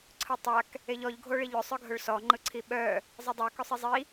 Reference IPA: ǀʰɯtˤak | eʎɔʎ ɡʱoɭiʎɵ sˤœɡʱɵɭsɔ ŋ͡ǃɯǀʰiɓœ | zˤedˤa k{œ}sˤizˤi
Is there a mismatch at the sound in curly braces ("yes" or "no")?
yes